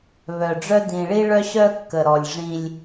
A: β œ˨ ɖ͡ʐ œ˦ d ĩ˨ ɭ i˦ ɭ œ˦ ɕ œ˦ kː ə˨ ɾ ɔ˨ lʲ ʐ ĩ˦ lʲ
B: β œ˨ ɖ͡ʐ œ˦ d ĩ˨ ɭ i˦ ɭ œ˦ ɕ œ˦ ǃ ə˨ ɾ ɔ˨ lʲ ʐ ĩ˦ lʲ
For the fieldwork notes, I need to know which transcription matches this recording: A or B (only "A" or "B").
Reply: A